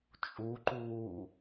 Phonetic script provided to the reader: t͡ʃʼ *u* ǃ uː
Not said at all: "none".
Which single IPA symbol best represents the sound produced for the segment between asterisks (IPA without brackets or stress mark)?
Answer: u